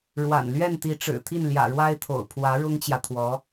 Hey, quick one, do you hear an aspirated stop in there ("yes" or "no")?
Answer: yes